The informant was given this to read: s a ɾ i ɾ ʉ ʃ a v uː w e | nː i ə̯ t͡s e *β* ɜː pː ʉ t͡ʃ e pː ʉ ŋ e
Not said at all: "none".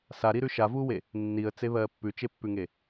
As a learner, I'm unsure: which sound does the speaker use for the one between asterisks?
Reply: β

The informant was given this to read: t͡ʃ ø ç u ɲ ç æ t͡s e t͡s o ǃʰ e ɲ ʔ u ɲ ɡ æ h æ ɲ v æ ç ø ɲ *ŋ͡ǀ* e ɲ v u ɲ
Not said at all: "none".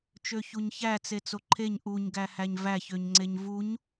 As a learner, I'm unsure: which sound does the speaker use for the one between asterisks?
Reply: ŋ͡ǀ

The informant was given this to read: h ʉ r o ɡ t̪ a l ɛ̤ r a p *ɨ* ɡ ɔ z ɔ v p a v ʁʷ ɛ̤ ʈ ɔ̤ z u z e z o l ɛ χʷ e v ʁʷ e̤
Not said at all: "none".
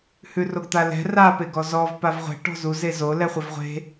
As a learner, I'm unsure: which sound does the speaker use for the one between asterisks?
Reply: e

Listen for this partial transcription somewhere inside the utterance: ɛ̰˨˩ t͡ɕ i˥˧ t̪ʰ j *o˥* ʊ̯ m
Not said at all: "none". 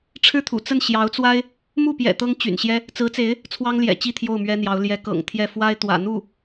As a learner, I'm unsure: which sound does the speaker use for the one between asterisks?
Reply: o˥˩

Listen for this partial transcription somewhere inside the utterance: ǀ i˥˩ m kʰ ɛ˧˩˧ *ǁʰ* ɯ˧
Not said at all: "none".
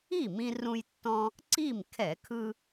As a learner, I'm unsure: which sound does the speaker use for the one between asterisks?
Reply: kʰ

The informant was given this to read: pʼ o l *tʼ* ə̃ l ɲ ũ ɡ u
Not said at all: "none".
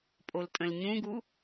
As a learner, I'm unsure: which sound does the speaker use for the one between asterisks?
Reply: tʼ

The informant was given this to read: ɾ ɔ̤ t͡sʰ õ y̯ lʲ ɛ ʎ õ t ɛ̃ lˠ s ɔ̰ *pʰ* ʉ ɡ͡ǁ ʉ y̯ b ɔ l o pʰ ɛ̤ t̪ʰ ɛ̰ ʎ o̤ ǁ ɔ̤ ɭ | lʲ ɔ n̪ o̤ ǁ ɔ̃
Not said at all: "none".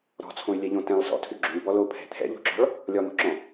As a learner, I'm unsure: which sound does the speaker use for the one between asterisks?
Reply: tʰ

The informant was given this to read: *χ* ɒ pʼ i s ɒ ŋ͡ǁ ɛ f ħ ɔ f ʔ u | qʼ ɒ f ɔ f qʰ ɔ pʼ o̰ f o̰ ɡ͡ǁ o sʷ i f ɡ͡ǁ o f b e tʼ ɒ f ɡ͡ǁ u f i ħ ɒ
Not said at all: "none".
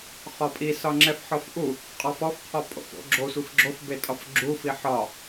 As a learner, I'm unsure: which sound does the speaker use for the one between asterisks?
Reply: χ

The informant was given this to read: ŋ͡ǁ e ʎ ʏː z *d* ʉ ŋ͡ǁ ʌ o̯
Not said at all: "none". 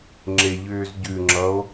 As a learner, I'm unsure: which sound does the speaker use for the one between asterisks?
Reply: ɟ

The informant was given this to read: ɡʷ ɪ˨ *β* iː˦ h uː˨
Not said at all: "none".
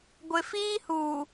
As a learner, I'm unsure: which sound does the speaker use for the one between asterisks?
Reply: f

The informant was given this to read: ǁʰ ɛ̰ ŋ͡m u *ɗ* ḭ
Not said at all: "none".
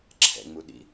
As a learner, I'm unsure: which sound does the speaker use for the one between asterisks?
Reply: ɗ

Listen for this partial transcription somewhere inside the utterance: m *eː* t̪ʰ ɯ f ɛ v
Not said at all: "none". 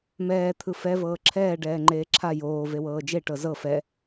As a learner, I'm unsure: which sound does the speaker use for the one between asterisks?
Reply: ɛː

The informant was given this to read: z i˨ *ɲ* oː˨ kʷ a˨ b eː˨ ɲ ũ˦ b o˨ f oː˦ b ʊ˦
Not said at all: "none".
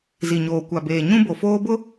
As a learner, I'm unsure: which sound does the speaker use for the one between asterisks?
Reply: ɲ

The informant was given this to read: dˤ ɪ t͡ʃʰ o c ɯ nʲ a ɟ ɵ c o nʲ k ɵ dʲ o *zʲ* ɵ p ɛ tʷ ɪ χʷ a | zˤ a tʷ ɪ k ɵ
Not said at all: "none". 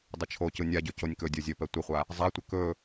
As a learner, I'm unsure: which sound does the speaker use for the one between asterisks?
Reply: zʲ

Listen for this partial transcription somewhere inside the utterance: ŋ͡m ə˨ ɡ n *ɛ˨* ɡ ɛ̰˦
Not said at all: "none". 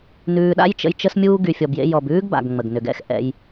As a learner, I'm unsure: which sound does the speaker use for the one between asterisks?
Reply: ʏ˨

